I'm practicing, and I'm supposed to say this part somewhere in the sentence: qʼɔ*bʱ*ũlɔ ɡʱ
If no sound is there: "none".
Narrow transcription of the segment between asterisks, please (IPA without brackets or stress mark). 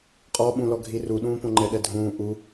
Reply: ɓ